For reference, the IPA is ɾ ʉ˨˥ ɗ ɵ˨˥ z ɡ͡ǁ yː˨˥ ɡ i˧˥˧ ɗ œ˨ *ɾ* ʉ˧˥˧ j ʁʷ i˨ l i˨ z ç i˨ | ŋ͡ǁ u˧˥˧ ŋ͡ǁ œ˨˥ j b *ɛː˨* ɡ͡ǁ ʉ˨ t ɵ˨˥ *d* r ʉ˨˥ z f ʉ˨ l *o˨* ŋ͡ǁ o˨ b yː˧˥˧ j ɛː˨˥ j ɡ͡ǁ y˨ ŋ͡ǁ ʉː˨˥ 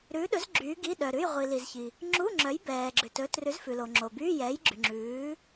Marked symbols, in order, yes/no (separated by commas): yes, yes, no, yes